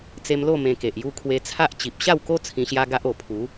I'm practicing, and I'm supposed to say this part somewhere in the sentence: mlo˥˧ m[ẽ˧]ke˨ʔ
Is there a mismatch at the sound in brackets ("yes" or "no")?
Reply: no